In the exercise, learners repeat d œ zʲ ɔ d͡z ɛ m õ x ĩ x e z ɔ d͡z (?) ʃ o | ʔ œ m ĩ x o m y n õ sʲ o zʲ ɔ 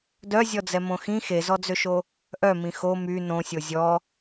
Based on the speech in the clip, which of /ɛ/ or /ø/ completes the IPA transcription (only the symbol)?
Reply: ø